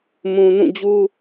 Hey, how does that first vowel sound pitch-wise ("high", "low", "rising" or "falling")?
low